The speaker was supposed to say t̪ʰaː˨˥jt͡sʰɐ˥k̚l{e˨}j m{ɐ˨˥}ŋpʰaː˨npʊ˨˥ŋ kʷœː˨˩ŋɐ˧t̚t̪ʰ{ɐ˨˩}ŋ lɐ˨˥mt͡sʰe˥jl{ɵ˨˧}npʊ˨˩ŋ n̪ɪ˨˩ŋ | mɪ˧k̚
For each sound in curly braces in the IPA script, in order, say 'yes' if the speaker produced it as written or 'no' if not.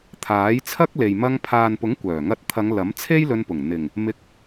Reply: yes, no, no, no

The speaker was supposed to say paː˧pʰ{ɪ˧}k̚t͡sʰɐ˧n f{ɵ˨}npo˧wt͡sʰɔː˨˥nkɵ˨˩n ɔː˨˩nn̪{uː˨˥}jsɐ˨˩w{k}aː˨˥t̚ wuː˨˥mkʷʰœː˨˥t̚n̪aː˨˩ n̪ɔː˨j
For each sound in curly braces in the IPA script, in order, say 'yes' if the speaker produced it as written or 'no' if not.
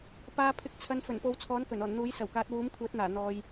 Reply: yes, no, yes, yes

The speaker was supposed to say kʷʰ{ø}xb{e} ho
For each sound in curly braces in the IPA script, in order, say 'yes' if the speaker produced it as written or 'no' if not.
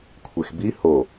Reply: no, no

